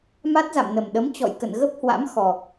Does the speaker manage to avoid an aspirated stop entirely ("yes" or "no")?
yes